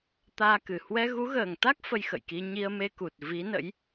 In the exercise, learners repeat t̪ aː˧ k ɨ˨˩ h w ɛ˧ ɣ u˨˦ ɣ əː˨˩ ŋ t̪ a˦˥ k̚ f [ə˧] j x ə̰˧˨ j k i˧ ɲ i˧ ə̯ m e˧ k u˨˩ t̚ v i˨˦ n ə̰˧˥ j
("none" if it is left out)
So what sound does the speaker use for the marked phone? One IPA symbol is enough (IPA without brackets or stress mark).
ə˧